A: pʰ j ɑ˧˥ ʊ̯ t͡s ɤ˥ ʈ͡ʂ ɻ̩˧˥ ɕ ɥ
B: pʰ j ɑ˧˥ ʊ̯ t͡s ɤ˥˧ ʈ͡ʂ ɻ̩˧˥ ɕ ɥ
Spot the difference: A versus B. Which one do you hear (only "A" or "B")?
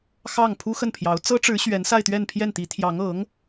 A